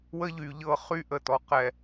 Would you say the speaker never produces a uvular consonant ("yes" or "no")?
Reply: no